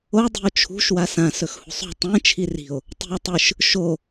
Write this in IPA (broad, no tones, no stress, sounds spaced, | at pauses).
o dˤ i̤ o̯ t͡ʃʰ ṳ ʃ w a s ã s ɵ x h ṳ sˤ ṳ tˤ ẽ t͡ʃʰ i r i̤ o̯ | tˤ i̤ o̯ tˤ ɨ ʃ | ʃ o